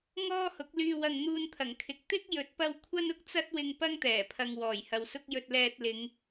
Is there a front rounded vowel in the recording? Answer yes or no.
yes